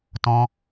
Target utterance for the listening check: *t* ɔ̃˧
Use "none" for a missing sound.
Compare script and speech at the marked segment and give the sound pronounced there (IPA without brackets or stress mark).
t